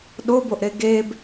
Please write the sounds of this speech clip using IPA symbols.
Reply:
ɗ o b o ʔ ɾ e ɡ e b

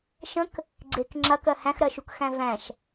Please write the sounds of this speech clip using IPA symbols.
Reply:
ʃ ə̃ k | ɡ͡ǀ e k ŋ͡ǁ ɐ k ɜ h æ̃ x ɾ ɜ ʃ u k x æ̃ v æ̃ ʃ

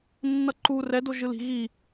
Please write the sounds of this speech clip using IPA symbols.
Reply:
nː ʌ ǃ u r ɛ d o ʒ ɯ l i̤ ɣ i

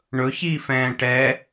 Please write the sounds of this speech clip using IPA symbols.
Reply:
ɳ ɵ ç i f ɛ̃ː ʈ ɛ

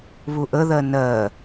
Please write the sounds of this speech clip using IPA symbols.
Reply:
β u ʔ ə ð ɜ n ɜ

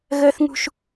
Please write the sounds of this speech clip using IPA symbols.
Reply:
ɣ əː˦ θ ŋ ṳ˦ ʃ

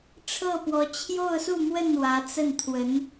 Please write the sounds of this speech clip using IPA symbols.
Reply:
ʈ͡ʂʰ ɤ˥˩ p w ɔ˧˥ t͡ɕʰ j o˥˧ ʊ̯ s u˥˧ m w ə˥˩ n w ä˧˥ t͡s ə˥˩ n t̪ʰ w ə˧˥ n

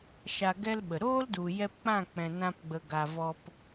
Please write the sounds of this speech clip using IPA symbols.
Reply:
ʃ a˧ ɡ ɛ˦ l ɓ ə˨ ɾ oː˦ l d u˨ j ɛ˧ p k͡p ã˦˨ k͡p ɛ̃˨ n ã˧ p ɡ͡b ə˨ ɡ a˨ v ɔ˧ p

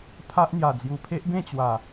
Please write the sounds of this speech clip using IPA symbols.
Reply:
pʰ a˦ ʔ n̪ j a˨˩ d͡z j u˨˩ pʰ e˦ ʔ b ẽ˥˧ t͡ɕ w a˨˩

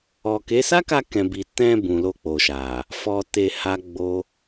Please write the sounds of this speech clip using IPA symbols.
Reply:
ɔ˨ k e˨˦ s a˦ k a˧ k ɛ̃˨ b i˨ t ɛ̃˧ b ũ˨ l o˧ k͡p o˨ ʃ a˨ | f ɔ˨ t e˧ h a˦ ɡ͡b o˦

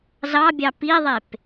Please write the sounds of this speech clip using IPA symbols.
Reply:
z ɑ bʲ ɑ p i ðˤ e p

